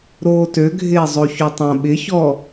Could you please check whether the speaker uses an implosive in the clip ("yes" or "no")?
yes